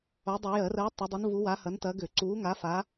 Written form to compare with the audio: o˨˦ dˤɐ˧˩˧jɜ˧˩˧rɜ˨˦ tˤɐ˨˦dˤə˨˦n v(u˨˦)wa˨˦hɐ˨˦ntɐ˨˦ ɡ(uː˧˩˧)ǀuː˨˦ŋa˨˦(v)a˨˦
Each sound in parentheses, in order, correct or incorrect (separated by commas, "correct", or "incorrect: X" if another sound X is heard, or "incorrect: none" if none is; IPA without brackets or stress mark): correct, incorrect: ʏː˧˩˧, incorrect: f